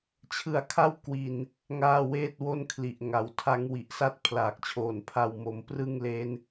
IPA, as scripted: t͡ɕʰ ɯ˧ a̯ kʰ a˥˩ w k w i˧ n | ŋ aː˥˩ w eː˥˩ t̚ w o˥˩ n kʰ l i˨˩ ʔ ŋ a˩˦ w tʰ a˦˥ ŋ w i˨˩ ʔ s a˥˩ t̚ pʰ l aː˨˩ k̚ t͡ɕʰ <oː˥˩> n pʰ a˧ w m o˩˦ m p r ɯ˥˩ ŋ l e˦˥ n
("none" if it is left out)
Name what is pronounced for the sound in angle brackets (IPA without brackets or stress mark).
oː˨˩